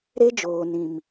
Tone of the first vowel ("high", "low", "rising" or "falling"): high